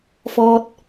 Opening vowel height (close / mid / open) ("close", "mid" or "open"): mid